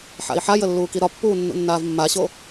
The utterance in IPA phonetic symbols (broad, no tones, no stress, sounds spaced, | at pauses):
ħ a̰ i̯ ħ a j ə lː uː k i ɾ ɒ pː uː nː ṵ nː aː v mː a ɕ o